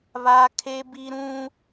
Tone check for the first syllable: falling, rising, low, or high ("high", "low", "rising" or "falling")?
high